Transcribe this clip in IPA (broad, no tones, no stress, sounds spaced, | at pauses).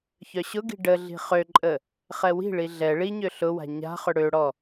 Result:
ç œ ɕ ʊ ɡ i̤ ɖ ə ɮ i̤ χ ø ǃʼ ə | χ ɛ w i̤ ɭ i ɮ ɛ ɭ i ɲ ø ɬ ʊ w a̤ ɲ a̤ χ ʏ ɽ ø ɽ ɔ